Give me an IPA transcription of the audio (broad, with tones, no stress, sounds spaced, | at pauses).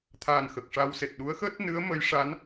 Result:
t̪ʰ aː˨˩ n x ə˨˩ k̚ ʂ a˧ w s e˨˩ t̚ ɗ u˧˥ ə̯ x əː˦˥ t̚ n ɨ˧˥ ə̯ m ə˧˥ j ʂ a˧˥ n